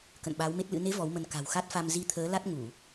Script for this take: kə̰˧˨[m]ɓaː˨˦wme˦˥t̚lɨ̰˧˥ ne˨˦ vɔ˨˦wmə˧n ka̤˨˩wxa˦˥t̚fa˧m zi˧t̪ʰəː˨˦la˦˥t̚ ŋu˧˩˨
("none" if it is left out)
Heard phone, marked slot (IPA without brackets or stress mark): n